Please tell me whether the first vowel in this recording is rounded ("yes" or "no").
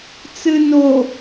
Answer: no